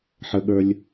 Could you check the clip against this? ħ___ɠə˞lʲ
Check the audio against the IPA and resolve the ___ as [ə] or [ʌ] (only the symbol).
ə